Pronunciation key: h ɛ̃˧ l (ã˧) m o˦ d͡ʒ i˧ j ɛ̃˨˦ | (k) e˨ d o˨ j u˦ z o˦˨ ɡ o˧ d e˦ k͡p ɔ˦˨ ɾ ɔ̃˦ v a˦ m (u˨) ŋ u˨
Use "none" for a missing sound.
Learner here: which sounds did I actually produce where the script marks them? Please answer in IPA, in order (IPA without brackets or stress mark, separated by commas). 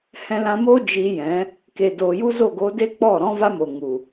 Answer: ã˧, k, o˨